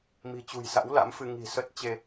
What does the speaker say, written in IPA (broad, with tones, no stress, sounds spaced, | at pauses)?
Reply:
m i̤˨˩ t͡ɕ ṳ˨˩ j s a̰˧˥ w l a̰˧˥ m f ɨ˧ ŋ i̤˨˩ s ə˦˥ t̚ t͡ɕ e˧